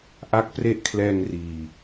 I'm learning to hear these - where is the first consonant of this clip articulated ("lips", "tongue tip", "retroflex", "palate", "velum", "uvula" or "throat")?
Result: throat